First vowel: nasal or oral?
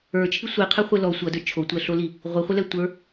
oral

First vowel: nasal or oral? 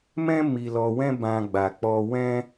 nasal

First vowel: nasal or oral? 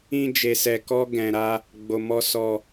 nasal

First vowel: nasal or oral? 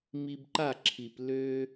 oral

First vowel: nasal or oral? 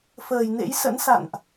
oral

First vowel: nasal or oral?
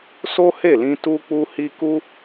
oral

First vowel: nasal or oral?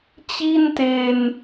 oral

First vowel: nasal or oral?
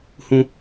nasal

